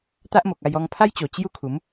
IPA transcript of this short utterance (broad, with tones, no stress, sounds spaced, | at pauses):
t̪ a˦ ʔ m o˨ k̚ a˧ j ɔ˧ ŋ pʰ a˦ j t͡ɕ o˨˩ t͡ɕ j u˦ kʰ u˨˦ m